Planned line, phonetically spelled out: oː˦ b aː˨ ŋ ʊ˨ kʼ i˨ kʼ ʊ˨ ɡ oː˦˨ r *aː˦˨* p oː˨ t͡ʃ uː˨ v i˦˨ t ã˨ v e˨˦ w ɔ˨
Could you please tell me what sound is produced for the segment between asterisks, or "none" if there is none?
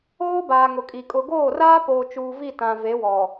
aː˦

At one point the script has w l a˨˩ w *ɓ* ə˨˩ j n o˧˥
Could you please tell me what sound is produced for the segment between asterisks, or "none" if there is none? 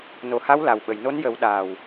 ɓ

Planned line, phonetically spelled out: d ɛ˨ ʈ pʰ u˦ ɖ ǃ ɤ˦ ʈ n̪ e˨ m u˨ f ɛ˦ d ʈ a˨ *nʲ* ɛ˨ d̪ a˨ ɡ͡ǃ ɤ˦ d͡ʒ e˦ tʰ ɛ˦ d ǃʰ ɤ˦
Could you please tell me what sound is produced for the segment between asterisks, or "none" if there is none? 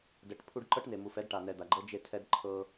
n̪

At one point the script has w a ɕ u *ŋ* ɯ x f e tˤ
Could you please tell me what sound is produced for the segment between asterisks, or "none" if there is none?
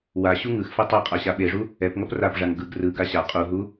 ŋ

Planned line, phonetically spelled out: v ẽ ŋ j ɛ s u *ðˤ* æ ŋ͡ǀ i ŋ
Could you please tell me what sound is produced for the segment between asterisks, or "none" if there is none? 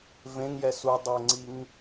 dˤ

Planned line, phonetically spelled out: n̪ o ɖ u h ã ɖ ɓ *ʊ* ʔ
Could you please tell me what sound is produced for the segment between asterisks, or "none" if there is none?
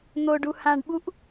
u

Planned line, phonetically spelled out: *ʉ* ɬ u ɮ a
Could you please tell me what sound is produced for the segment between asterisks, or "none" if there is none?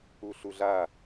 u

